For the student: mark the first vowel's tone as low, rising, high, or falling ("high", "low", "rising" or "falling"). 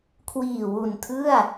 low